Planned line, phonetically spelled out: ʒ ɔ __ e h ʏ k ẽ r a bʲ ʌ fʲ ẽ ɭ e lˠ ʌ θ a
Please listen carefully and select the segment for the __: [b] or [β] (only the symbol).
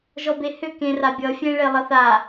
b